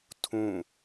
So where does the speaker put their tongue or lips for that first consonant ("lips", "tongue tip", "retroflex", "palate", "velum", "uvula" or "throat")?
tongue tip